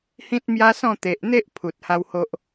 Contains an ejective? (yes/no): no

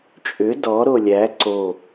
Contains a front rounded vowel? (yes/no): yes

